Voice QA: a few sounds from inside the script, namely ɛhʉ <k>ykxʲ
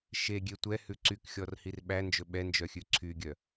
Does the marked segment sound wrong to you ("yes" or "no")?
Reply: yes